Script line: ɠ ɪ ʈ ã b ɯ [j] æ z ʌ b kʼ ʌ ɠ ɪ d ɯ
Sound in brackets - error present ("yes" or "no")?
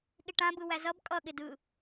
yes